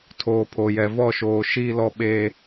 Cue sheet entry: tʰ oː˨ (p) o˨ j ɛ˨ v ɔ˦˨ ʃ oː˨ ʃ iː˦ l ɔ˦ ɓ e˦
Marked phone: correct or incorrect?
incorrect